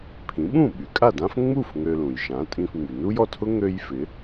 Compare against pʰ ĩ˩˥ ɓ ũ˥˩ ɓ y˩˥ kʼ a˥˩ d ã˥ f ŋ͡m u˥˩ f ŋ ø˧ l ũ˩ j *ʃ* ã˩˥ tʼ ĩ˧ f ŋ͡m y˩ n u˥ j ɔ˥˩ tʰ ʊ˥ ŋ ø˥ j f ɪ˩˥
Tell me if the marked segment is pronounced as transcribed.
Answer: yes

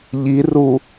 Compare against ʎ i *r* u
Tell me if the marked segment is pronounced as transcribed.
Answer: yes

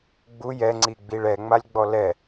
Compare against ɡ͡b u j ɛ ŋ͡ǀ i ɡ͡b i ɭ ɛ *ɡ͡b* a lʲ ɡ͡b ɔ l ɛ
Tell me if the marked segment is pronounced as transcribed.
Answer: no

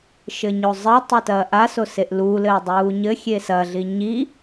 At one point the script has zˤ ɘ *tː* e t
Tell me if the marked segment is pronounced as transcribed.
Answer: no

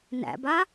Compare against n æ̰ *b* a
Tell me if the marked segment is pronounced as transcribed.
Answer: yes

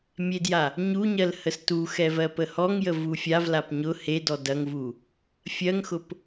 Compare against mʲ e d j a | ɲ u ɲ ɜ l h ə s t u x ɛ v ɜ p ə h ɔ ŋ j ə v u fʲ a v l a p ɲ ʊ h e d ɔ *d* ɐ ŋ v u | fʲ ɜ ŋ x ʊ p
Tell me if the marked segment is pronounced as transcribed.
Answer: yes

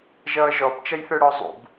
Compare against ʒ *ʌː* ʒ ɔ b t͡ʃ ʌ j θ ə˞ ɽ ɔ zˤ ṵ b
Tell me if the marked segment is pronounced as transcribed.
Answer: yes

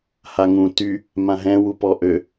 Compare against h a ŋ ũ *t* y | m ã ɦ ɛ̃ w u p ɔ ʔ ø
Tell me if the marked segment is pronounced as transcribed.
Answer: yes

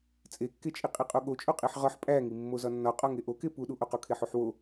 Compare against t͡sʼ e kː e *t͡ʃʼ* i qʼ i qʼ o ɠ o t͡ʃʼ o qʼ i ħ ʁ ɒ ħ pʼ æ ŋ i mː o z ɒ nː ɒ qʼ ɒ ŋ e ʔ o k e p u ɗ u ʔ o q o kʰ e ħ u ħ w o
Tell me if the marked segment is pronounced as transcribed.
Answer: yes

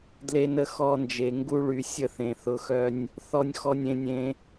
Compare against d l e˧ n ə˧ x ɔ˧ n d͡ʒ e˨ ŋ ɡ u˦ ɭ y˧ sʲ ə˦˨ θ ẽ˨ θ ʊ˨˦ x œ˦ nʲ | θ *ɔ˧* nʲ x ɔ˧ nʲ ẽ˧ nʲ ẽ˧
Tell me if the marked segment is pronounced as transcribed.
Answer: yes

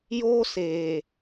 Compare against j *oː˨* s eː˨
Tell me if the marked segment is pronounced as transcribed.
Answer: no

